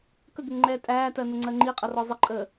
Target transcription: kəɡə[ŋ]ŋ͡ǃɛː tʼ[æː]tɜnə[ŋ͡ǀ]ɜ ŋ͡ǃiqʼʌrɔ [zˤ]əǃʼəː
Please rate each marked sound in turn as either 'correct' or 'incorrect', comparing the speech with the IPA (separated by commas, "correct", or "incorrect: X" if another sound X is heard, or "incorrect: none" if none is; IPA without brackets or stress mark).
correct, correct, correct, correct